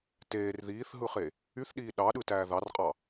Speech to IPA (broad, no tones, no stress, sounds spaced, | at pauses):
t eː r ð iː θ ɦ ɯ χ e | y θ ɗ iː ɗ ɑ ɗ ɯ t æː ð ɑ r qʼ ɑ